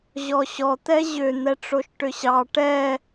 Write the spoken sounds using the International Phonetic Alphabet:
ʑ ɔ ɕ ɔ t̪ ɛ ʑ ʏ n̪ ɛ ʈ͡ʂ o ʃ ʈ ʏ ɕ ɑ ʈ ɛ

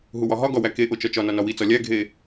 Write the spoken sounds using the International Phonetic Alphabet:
ɦ u w ɒ ɦ ɒ ɡ ɒ w æ k e ʔ o t͡ʃ ɒ t͡ʃ ɒ n ɒ n ɒ w i t͡s ɒ lʲ æ ɡʱ e

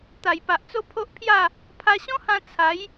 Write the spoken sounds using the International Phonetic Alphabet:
t̪ a˨˩ j p a˨ ʔ t͡s o˦ pʰ o˦ ʔ pʰ j a˥˧ | pʰ a˧ ɕ ɔ̃˦ h ã˧ t͡sʰ a˨˦ j

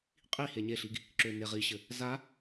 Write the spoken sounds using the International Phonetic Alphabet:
qʼ i h e ɲ e ɬ i ɡ | ǁ ø n e ʁ i ɕ ɘ | z a

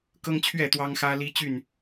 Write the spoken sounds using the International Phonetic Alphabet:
k ɤ˦ ŋ t͡ɕʰ ɥ ɛ˥˨ t̪ w ɑ˦ ŋ x ä˦ l i˦ t͡ɕ y˥˨ n

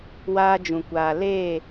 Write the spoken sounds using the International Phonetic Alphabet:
w aː˦ d͡ʒ ũ˨ kʷ aː˨ l eː˦˨

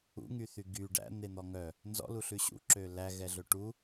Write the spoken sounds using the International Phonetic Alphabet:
ṵ ŋ y θ y ɡ y ɖ æ̰ n̪ e n̪ ɔ ŋ œ | n z ɔ̰ l u ɬ ʉ ɕ ṵ ǁ ø l æ ɣ ɛ ɮ ɵ ʈ u

